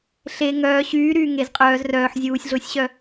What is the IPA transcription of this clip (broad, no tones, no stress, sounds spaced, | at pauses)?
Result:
ɬ e ŋ œː ɕ yː ɾ yː ŋ e z qʼ œː z r œː ħ zʲ uː sʲ ɮ ʊː sʲ ɕ œ